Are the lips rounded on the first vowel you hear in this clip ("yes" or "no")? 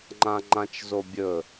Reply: no